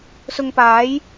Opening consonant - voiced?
no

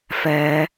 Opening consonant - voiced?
no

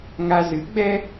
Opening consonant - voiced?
yes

